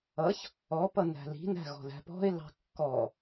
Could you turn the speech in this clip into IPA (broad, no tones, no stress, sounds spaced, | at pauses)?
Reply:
ʌ ç | ɔ p ʌ n æ̤ l i̤ n æ̤ ɣ ɔ̤ ð æ̤ p ɔ̤ ɪ̯ l ɑ̤ kː ɔ